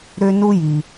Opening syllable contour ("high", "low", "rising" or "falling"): high